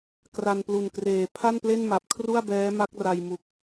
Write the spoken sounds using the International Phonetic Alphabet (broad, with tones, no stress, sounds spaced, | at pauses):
k r a˧ n p l u˨˩ n k r eː˨˩ pʰ a˥˩ n p l e˥˩ n m a˨˩ p̚ kʰ r u˥˩ a̯ b ɛː˦˥ m a˦˥ k̚ r a˧ j m u˨˩ k̚